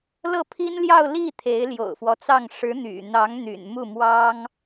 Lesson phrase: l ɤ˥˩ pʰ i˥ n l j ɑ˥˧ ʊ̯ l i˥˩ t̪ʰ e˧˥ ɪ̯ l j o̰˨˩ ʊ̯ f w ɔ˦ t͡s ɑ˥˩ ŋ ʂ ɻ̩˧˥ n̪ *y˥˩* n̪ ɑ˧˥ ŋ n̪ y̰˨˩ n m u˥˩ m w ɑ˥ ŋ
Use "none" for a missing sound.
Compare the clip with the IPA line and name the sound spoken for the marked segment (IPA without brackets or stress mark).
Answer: y̰˨˩